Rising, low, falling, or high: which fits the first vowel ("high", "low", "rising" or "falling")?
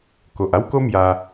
low